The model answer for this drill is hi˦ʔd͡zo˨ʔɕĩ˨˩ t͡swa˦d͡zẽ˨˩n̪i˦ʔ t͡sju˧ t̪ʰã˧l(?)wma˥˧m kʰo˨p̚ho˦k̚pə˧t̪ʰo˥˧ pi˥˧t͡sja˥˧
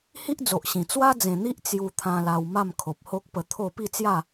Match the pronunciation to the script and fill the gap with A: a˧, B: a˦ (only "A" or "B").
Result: A